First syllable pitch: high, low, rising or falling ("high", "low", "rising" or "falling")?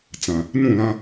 low